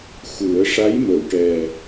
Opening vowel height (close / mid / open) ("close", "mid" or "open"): close